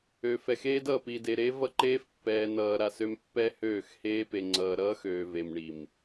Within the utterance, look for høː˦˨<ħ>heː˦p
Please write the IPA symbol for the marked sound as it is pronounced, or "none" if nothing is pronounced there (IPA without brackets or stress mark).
x